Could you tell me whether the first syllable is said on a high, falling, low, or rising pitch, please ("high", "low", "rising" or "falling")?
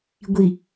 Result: low